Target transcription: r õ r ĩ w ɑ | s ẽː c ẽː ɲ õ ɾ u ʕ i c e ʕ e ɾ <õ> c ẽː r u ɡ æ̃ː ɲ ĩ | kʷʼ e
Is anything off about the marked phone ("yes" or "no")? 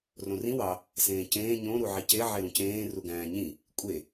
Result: yes